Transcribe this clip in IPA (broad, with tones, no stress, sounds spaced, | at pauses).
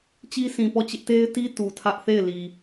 t͡ɕ i˦ sʰ ĩ˨ p ɔ˦˨ t͡ɕ ɪ˦ ʔ t e˦ ɪ̯ t i˦ t u˨ tʰ ä˦ ʔ θ e˦˨ ɪ̯ l i˨